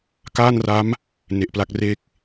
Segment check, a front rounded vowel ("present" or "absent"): absent